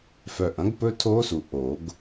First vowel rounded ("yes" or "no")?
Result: yes